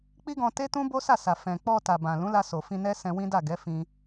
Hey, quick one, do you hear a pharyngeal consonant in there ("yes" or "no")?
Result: no